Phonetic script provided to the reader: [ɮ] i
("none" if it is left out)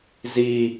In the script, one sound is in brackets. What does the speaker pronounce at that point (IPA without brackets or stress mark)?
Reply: z